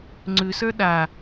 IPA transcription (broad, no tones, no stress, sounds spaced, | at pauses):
ŋ͡ǀ ʉ s ə˞ ɗ a